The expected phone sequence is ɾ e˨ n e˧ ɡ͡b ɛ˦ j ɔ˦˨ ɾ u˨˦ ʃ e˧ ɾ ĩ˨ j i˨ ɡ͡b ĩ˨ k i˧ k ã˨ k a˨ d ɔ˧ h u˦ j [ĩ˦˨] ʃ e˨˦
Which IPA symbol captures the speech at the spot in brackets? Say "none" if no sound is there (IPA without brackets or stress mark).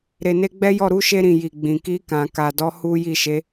i˦˨